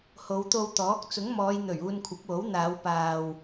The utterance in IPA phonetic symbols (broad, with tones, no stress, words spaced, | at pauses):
ho˨˧wt̪o˧wt̪ɔː˨˥k̚ t͡sʊ˨˥ŋmɔː˨˧jn̪ɵ˨˩ɥ uː˧nkʷʰɐ˨˥p̚wo˨˥w n̪aː˨˧w paː˧w